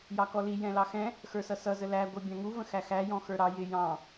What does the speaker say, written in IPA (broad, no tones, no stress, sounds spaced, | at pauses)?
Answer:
j ɑ k ɔ l i j ɛ̃ l ɑ x ɛ̃ | x ə˞ s ʌ s ʌ z ə l æ ɡʷ ə˞ bʲ ɑ̃ ŋ u v ə̃ x æ x æ j ɔ̃ x ə˞ ɾ ɑ j ɪ j ɑ̃